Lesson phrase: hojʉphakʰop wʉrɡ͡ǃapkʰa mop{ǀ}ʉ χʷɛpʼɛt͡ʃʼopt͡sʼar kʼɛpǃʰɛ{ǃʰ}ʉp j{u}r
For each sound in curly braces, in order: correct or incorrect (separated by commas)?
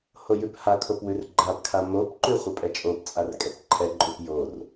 incorrect, incorrect, incorrect